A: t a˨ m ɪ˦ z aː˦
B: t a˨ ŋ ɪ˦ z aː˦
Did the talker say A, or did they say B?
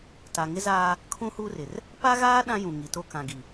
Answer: B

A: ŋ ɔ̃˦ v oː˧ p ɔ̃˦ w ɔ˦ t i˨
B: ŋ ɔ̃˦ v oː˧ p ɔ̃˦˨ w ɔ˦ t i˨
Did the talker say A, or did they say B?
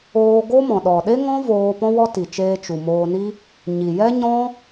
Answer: A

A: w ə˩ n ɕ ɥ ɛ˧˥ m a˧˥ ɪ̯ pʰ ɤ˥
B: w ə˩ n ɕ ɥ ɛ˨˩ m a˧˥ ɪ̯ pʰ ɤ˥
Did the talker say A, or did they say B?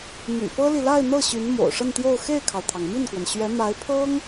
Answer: A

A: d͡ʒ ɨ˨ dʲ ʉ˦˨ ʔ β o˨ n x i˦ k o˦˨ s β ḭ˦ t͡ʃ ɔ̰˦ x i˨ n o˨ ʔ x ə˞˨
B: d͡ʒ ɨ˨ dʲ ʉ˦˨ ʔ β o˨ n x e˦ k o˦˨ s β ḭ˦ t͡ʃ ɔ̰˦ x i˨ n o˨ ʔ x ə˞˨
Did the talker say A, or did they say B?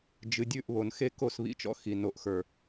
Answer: B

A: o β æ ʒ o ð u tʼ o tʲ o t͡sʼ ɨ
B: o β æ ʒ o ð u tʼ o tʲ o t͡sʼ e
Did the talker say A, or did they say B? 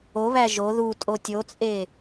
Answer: B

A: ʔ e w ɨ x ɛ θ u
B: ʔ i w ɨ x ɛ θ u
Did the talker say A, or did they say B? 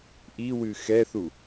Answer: B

